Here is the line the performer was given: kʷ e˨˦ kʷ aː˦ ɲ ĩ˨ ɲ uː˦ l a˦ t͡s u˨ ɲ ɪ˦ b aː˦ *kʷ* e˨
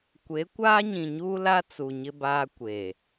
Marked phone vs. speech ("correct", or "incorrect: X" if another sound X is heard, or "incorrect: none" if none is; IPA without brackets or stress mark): correct